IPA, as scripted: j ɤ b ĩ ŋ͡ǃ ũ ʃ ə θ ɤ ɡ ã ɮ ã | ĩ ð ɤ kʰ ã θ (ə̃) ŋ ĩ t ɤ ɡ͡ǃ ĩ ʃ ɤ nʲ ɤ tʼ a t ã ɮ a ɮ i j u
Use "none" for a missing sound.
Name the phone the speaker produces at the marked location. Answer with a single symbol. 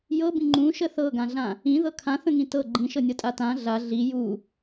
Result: ə̃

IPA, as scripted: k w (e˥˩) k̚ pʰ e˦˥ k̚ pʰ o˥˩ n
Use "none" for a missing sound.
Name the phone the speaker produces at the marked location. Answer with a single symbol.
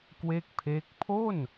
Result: e˥˩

